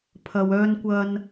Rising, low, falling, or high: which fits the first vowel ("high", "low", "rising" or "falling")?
low